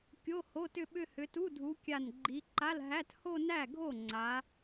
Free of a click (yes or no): no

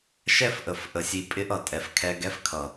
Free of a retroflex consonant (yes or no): yes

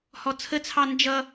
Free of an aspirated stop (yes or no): no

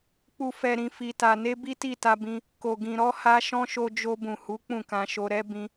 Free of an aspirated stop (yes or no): yes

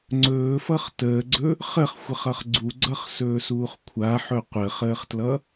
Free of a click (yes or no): no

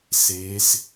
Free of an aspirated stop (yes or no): yes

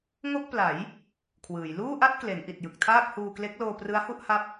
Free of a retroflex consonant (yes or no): yes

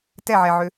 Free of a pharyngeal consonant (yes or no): no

